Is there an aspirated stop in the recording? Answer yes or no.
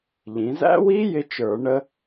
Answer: no